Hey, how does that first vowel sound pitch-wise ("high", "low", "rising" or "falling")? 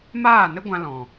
falling